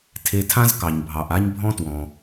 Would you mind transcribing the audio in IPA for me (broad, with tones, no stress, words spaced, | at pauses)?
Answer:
tʰe˧tʰã˥zkɑ˩ɲbʱɑ˩ʔ a˥ɲbʱɔ̃˥twɔ̃˩